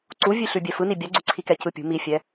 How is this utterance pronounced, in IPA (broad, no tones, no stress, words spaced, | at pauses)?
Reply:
ǀuvʲʉ ɬʉbʲɛfɯni bʲaɡ͡ǀuǀʰikɛ cɯpʲṳ mifʲɛ